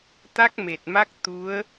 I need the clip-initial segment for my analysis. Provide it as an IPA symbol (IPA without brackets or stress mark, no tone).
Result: t̪